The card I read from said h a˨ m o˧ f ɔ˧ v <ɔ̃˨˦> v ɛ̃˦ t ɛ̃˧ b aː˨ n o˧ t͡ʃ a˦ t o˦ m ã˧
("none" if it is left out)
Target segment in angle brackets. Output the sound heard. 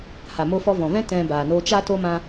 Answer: ɔ̃˨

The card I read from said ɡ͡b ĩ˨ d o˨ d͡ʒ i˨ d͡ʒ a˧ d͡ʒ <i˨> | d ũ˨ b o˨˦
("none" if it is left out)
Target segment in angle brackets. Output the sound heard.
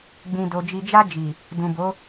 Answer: i˨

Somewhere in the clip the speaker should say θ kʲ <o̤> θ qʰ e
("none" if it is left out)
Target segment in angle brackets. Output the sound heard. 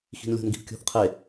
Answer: o̤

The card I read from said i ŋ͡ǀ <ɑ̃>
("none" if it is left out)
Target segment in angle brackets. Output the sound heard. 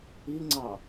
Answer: ɑ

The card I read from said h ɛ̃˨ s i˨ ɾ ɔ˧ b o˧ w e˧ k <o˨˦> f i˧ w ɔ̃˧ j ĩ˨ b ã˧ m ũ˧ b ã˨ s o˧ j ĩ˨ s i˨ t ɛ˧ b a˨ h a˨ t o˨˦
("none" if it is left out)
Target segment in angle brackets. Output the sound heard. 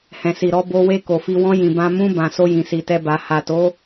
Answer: o˨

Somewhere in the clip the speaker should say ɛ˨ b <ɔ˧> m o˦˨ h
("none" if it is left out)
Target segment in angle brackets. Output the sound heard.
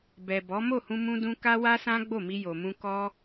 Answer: ɔ˨˦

